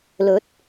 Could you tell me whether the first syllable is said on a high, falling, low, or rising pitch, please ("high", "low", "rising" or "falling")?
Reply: rising